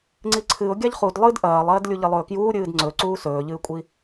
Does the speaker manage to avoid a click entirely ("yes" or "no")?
no